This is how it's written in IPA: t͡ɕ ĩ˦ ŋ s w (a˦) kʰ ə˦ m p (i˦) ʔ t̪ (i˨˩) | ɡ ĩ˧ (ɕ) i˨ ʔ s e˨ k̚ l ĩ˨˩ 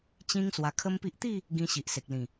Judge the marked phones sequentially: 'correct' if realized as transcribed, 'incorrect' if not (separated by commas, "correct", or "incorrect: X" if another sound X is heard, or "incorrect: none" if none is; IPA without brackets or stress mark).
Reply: incorrect: a˧, correct, incorrect: i˥˧, correct